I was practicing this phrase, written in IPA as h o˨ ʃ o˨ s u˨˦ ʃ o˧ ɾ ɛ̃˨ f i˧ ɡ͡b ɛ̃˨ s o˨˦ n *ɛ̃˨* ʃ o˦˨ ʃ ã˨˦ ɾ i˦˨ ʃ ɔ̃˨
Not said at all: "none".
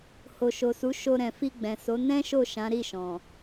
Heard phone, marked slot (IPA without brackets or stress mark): ɛ̃˦